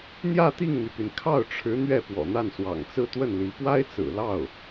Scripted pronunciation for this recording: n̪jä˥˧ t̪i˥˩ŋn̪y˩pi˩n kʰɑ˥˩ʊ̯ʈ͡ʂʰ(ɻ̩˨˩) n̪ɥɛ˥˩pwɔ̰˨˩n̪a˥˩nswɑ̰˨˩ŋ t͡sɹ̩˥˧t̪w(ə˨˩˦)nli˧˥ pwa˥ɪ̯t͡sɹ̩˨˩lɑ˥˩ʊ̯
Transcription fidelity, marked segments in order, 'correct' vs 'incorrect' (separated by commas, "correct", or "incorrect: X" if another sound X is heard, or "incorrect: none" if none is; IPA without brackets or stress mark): incorrect: ɻ̩˧˥, incorrect: ə˥˩